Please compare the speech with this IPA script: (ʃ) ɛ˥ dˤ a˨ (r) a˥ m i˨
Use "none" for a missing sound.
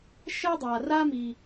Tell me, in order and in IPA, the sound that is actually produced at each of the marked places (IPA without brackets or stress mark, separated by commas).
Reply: ʃ, r